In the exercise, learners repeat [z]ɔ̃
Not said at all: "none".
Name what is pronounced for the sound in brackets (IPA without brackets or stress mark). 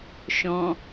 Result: ʃ